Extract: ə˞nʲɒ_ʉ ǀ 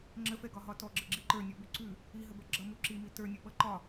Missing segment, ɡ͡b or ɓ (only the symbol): ɓ